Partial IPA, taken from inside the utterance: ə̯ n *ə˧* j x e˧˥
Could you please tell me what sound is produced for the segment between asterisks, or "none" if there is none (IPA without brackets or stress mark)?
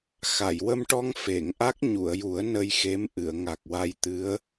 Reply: ə˧